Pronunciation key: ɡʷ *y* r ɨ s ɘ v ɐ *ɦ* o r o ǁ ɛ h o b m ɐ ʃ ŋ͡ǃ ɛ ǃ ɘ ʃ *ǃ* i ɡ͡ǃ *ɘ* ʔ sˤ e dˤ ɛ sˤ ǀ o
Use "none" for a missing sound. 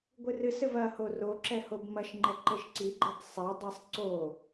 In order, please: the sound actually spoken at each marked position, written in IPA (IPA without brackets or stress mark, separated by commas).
ɨ, h, ǀ, ɘ